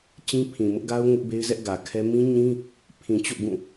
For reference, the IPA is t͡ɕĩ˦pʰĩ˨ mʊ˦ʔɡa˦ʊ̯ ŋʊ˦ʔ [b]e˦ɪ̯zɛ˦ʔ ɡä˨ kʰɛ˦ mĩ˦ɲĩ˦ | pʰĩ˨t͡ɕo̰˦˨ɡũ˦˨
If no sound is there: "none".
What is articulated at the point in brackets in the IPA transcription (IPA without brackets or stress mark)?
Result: b